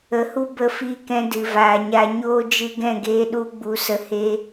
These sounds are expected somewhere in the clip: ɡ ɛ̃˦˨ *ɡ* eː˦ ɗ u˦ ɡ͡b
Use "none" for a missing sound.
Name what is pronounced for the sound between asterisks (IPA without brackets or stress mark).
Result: ɡ